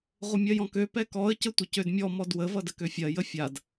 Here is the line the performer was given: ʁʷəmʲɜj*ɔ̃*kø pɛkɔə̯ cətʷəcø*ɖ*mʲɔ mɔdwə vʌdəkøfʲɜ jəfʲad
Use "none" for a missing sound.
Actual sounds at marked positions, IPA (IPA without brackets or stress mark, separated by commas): ɔ̃, d